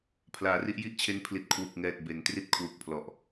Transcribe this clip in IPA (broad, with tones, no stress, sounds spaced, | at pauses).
pʰ l aː˩˦ r i˥˩ ʔ j i˥˩ ʔ t͡ɕʰ e˦˥ n pʰ l i˨˩ t̚ kʰ w u˨˩ k̚ ŋ ɛː˨˩ t̚ b e˩˦ n t r i˥˩ t̚ kʰ w u˨˩ k̚ pʰ l ɔ˨˩ ʔ